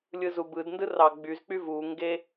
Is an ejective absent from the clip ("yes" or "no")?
yes